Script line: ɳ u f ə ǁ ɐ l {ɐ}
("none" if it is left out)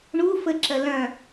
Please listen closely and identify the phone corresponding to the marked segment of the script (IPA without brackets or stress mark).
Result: ɐ̃